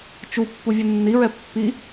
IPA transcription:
t͡ʃu pːuvʲɯnːiɹɛ pːi

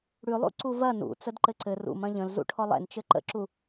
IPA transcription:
ɽʉlˠṵ ǀuvɐ nṵt͡səd ǃɘǀɘ rṵm ɐ̃ʎə̃l zṵʈʰɔlˠɛ̰n t͡ʃɘǃə̰ǁu

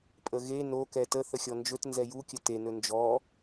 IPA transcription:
pʼəɣe no kɛtə θəxʲɔnd͡ʒɵt nzɛju kʲəte nɵnd͡ʒɔ

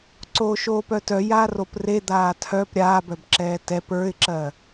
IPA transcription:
ǀoːʃoːpœtœ jaːropre d̪aːtʰœp ɾʲaːbœbǁɛː tɛp ə˞ɪ̯ǁɜ

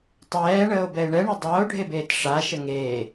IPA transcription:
tˤɛːɳəːo̯bɛe̯ ɳɛɳe dˤʌːo̯ɖʱebeːt ʂaʃə ŋeː

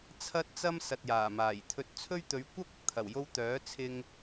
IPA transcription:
t͡sʰɐ˧t̚t͡sɐ˧m sɐ˨t̚jaː˨˩maː˨˩j t̪ʰɵ˨˥t̚t͡sʰɵ˥ɥ t̪ɵ˨˧ɥkʷɐ˥p̚ ɐ˨k̚t̪ʰɐ˨˩wjo˧w t̪œː˨˥t͡sʰɪ˧ŋ

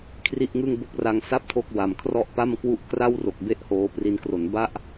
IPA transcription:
kʰri˥˩ʔŋɯ˥˩ŋbo˥˩k̚ra˧ŋ sa˥˩p̚ tʰo˥˩k̚wa˨˩m kʰrɔ˦˥ʔpa˥˩m kwu˦˥ʔ kra˥˩wro˨˩k̚ be˥˩ʔhoː˦˥pri˦˥n kro˩˦nba˥˩ʔ

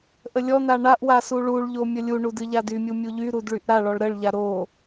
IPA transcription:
ʔəlʲɔn̪a ɳaʔwa suɭuɭʎo mʲəlʲuɳu dɨʎadymʲu mʲuʎyɾud ɭyʔɾaɭɔɭ ɾəɭʎa ɾo

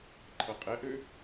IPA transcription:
ǃʰʌqʼɛʔø

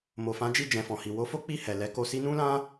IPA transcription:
mo˨fã˨˦d͡ʒi˦˨d͡ʒɛ̃˨ fɔ̃˨hi˨ wo˨˦fo˦ k͡pi˦˨ hɛ˨ lɛ˨˦ko˧si˦ nũ˦lã˦

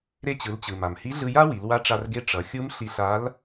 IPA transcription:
ɾe˧t͡ɕɯ˩˧lt͡ɕɯ˩ ma˩mhi˧˥ɮɯ˧ja˥ wi˩˧lwa˧˥ʈ͡ʂa˧rɡe˧˥ ʈ͡ʂʌ˩˧xʲu˧˥m ɬi˧ɬa˧˥l

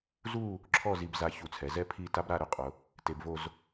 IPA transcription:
zu˥˧ | ǁʰɔ˥˧zi˧bza˧ çu˧˩t͡sʰɛ˩˧zɛ˥ pʰi˥˧ ta˥bɾa˥˧ɾʊ˥qʼʊ˩˧ | te˧bvo˥˧z

